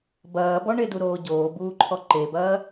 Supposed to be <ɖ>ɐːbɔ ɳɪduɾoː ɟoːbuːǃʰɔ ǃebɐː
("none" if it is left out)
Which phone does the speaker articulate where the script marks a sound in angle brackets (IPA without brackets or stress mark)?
b